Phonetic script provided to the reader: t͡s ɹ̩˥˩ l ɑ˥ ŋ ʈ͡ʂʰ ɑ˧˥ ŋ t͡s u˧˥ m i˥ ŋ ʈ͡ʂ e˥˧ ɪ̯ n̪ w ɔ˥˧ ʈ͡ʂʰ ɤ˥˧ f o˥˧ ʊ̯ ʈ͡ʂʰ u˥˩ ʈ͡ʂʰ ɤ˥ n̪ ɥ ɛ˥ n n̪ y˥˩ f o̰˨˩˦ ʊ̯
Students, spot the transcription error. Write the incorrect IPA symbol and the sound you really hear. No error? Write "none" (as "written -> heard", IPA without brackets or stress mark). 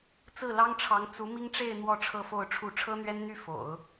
none